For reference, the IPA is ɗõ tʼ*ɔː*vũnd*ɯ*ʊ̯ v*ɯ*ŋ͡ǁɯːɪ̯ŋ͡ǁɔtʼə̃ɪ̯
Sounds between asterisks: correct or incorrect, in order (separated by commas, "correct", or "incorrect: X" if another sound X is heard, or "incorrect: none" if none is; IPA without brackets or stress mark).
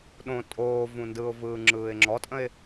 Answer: incorrect: oː, correct, incorrect: ɯː